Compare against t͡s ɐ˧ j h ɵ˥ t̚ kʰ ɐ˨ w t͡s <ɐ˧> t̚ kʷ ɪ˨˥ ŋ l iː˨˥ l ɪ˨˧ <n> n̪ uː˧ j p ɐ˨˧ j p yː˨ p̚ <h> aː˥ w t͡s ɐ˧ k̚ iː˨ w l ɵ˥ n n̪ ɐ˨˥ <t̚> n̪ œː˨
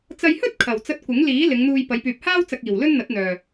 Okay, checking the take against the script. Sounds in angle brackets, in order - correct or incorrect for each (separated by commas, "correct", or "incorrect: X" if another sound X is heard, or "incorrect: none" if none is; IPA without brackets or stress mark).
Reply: correct, incorrect: ŋ, correct, correct